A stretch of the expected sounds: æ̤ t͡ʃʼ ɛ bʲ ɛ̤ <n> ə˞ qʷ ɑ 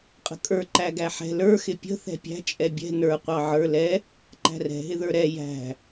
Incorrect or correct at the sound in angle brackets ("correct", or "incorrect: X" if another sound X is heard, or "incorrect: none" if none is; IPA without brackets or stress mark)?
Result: correct